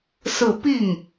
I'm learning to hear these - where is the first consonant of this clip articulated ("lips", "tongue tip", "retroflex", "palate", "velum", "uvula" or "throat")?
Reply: tongue tip